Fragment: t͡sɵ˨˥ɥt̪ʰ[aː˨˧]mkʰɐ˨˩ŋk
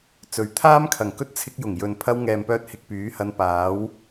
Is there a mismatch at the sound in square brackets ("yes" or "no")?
yes